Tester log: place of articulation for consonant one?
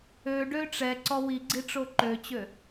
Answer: retroflex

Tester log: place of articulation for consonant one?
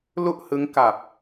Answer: alveolar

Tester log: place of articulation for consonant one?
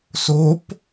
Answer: alveolar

